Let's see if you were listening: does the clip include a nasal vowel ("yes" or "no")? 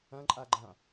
yes